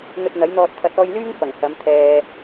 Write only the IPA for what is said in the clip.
n̪ ɵ˧ t̚ n̪ ɐ˨˥ j n̪ ɔː˧ t̚ t̪ʰ ɐ˨˥ t̚ ɔː˧ j l yː˥ ŋ f ɐ˨˩ ŋ h ɐ˨˧ m t̪ʰ ɛː˧

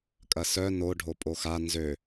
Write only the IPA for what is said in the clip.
kʼ ɐ s œ n o ɖʱ o pʼ o x a n z ø

